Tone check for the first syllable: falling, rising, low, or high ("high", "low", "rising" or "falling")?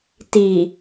low